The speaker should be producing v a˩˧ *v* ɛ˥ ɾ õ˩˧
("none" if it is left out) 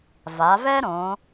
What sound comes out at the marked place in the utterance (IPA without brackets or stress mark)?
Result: v